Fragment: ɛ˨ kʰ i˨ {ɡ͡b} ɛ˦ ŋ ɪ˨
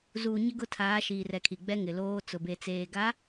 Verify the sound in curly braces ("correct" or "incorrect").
correct